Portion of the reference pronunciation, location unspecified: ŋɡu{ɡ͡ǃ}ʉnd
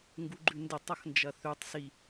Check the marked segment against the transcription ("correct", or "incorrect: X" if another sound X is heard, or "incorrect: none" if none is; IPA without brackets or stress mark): correct